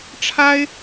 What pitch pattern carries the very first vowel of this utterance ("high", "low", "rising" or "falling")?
high